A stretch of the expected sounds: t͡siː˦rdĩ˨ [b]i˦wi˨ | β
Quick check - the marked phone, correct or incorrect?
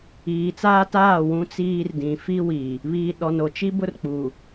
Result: incorrect